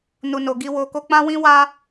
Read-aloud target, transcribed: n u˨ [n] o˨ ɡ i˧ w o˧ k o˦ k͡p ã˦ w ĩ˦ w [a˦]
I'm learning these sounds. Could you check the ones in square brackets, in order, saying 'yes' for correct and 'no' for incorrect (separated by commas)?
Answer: yes, yes